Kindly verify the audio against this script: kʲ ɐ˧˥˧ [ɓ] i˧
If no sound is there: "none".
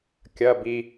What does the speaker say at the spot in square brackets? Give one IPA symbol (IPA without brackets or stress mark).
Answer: b